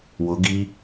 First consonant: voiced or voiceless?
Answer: voiced